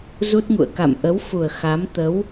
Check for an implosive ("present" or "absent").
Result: absent